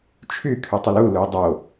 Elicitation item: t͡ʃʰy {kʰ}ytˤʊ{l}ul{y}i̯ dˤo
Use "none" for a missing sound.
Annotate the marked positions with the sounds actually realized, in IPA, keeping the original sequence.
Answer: kʰ, l, u

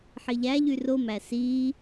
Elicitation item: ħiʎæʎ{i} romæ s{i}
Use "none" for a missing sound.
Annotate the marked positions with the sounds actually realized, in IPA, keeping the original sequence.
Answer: y, i

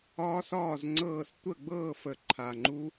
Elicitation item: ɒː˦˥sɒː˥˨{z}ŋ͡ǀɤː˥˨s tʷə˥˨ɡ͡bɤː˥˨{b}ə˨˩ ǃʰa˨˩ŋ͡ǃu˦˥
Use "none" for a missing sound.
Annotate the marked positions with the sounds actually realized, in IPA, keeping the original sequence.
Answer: z, f

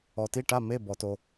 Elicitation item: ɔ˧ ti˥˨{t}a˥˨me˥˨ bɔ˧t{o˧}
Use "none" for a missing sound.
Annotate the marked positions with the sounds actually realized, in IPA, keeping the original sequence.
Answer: ʈ, o˧

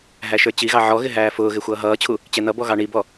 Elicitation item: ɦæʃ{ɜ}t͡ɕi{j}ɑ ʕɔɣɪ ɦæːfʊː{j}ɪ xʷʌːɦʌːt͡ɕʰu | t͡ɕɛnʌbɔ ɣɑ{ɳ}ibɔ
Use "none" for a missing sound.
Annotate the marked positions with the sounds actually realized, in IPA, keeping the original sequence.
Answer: ə˞, ɣ, ɣ, ɳ

